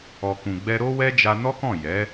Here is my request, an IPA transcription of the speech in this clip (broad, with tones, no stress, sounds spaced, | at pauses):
ɔ˨ k ũ˨ ɡ͡b ɛ˧ ɾ o˦ w ɛ˦ d͡ʒ a˧ n ɔ˦ k ɔ̃˦˨ j ɛ˨˦